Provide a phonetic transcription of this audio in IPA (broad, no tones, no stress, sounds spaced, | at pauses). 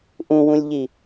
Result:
ʔ ũ w ũ lʲ ʎ i